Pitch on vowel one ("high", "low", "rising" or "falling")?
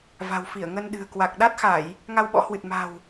low